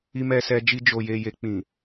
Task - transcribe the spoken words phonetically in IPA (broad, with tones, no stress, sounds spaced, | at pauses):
i˧ m ɛ˧ s ɛ˧ d͡ʒ i˧ d͡ʒ o˨ j e˨ j e˨ k͡p ĩ˨